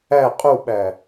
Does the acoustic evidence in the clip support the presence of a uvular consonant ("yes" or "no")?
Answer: yes